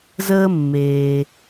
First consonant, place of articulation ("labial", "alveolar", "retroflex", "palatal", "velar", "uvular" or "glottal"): alveolar